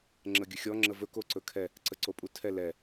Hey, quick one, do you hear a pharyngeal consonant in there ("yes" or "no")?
no